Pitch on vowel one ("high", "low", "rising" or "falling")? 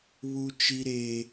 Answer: high